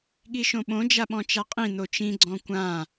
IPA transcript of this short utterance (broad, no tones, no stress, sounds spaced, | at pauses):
ɠ i ʃ õ ɓ õ d͡ʒ a ɓ ɔ̃ t͡ʃ a qʼ ĩ n̪ o t͡ʃ ĩ ɡ͡ǀ ɔ̃ kʷ ã